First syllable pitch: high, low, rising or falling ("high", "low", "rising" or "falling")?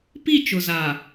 falling